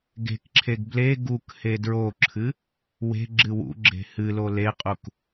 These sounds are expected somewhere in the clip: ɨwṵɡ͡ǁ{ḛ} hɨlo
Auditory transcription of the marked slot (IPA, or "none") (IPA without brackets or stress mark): e̤